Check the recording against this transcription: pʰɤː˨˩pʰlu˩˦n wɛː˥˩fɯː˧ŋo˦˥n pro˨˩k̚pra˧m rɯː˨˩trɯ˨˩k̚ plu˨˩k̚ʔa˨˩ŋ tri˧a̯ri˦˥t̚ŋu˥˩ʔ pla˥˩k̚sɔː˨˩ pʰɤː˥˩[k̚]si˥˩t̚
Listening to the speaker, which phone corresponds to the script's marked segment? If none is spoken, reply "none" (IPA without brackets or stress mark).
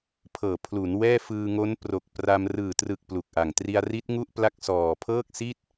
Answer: k̚